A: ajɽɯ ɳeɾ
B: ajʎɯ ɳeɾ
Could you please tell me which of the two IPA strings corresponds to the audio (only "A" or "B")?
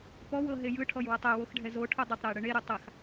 A